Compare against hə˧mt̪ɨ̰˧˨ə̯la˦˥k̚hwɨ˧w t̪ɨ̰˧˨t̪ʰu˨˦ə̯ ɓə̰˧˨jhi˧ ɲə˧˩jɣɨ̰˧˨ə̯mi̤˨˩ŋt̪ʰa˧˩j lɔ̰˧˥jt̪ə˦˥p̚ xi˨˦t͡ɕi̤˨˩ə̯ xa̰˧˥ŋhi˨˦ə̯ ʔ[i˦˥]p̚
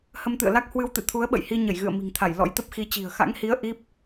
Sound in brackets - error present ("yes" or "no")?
no